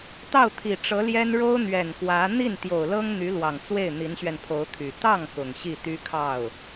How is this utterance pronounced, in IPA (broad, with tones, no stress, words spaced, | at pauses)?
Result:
t̪ɑ˥˩ʊ̯t̪ʰi˨˩ʈ͡ʂɤ˧˥ljɛ˥n ɻo˥ʊ̯n̪ɥɛ˨˩n kwä˧˥ n̪i˥˩nt̪jo˨˩ʊ̯lɤ˥ŋ n̪y˧˥lwɑ˨˩ŋt͡swe˥˩ɪ̯ n̪i˧˥nɕɥɛ˧npʰo˧˥ʊ̯ t̪ʰy˨˩ t̪ɑ˥˩ŋ kʊ˨˩ŋɕi˥˩t̪y˥kʰɑ˥˩ʊ̯